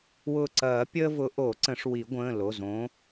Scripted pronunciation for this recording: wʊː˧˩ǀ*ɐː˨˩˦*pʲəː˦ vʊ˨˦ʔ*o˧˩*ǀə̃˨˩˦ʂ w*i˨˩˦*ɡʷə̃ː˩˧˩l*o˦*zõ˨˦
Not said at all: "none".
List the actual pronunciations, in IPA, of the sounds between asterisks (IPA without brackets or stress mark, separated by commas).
ɐː˨˩˦, o˨˩˦, i˨˩˦, o˩˧˩